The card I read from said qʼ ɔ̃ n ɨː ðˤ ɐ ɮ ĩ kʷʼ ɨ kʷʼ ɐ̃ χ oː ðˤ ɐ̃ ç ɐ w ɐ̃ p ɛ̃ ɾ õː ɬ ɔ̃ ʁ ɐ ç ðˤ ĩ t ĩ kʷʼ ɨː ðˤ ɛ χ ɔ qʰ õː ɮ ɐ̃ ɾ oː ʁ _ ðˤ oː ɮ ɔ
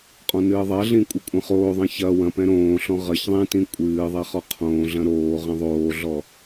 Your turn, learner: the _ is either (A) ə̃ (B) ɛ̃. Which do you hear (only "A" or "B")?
B